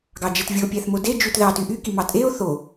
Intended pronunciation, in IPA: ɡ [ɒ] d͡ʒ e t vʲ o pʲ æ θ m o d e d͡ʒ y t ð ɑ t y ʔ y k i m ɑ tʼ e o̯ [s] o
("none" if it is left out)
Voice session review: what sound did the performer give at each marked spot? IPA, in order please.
ɑ, θ

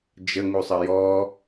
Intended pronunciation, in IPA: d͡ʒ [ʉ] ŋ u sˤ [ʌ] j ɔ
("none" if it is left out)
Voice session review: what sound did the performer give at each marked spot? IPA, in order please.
ə, ə

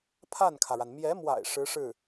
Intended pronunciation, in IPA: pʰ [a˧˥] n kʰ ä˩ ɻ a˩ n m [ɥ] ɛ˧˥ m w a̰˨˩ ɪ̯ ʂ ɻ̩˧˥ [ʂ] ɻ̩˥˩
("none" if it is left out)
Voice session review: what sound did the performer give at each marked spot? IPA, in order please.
a˥˩, j, ʂ

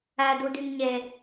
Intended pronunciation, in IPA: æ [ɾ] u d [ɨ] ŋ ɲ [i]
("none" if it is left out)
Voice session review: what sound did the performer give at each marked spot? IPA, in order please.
d, y, e

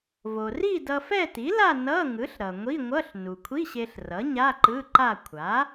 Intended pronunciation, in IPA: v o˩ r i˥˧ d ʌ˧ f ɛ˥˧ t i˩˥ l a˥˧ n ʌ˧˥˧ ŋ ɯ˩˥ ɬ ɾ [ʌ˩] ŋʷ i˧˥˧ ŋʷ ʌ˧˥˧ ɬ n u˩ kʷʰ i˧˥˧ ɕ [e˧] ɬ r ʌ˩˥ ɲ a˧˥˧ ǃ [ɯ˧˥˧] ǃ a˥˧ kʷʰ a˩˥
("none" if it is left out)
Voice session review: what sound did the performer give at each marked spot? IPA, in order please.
ʌ˩, e˧, ɯ˧˥˧

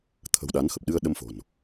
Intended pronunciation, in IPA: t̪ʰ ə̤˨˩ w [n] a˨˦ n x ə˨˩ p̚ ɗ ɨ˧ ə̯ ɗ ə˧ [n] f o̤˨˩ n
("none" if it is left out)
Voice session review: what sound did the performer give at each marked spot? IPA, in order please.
ɗ, m

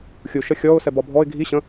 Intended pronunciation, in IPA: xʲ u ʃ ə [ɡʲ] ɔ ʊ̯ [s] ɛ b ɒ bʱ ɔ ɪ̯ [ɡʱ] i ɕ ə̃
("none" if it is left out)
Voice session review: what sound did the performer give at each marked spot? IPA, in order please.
xʲ, s, ɡʱ

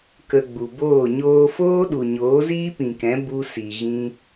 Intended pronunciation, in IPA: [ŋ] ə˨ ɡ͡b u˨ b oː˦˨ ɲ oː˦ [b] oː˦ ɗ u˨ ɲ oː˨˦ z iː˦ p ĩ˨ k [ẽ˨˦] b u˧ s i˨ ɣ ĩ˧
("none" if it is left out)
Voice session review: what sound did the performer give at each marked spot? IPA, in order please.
k, f, ɛ̃˨˦

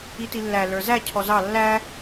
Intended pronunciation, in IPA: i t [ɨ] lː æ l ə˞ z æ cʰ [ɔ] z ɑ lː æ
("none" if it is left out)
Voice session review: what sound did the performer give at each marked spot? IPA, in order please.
i, ɔ

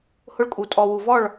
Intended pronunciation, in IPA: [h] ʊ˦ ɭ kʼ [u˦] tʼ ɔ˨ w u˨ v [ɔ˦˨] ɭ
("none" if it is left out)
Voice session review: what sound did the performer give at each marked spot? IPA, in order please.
h, u˨, ɔ˦˨

